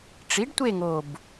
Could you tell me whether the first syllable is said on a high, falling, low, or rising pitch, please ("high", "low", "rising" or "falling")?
rising